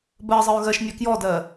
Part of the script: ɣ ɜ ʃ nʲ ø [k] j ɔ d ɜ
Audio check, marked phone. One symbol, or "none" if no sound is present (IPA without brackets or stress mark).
k